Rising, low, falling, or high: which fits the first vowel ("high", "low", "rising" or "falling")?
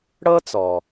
high